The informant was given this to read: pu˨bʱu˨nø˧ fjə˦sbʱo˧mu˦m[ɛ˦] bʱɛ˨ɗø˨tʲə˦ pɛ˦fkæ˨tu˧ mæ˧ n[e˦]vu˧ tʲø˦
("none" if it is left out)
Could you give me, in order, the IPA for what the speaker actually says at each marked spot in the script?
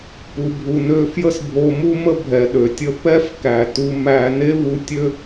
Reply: ə˦, e˦

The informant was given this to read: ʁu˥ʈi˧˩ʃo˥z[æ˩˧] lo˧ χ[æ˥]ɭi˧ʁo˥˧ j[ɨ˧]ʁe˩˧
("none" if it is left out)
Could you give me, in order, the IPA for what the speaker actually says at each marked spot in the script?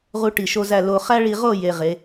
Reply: æ˥˧, æ˥, e˧

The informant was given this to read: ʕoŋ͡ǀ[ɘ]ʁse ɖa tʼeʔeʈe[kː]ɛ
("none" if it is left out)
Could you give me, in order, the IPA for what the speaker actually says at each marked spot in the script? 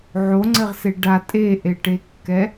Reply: ɘ, kː

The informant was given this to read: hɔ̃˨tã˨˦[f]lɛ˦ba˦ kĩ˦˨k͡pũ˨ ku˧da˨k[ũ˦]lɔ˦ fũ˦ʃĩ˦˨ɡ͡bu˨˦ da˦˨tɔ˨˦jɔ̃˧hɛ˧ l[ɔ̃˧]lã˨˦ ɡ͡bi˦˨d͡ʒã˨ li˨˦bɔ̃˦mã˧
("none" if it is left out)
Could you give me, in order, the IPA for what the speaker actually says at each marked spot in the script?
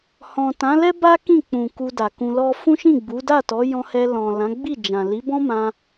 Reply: none, ũ˧, ɔ̃˨

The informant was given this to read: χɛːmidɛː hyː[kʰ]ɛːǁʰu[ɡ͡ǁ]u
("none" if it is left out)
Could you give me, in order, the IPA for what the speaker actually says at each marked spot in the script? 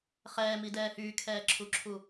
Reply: kʰ, ǁʰ

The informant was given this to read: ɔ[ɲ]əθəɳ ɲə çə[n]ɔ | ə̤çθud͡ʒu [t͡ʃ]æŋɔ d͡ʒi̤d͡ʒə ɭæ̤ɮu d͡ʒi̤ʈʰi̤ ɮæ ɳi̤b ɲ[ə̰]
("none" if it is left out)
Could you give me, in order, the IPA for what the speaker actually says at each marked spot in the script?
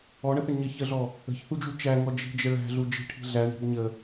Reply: ɳ, ɮ, t͡ʃ, ə

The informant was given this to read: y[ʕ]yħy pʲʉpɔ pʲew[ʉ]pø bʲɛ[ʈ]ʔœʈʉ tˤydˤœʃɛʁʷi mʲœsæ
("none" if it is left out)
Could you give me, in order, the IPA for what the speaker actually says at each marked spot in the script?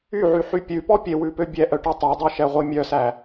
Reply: ʕ, ʉ, none

